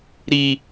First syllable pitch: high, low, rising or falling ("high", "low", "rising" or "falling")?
high